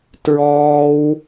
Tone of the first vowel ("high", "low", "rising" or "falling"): high